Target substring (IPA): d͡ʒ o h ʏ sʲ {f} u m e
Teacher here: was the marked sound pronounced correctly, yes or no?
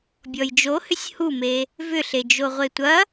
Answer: no